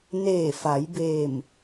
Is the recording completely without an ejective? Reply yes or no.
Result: yes